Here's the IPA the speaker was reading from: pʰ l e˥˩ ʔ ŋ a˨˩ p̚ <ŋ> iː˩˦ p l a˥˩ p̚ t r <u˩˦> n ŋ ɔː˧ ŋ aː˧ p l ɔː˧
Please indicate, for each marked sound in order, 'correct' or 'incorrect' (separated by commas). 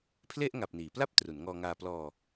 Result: incorrect, correct